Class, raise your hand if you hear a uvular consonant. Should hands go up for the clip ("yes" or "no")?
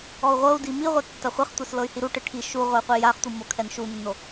yes